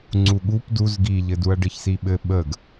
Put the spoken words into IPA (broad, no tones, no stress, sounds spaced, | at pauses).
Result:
ŋ͡ǀ u ɠ u p d u z ɡ i ʎ ɘ d u ɐ̯ ɖ ɘ ç s i ɓ ɘ ɓ ə ɡ